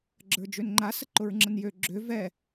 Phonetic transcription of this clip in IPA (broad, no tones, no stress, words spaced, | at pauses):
ɡ͡ǁə˞d͡ʒønŋ͡ǃa səǃʊɹŋ͡ǁənjø ɡ͡ǁø vɛ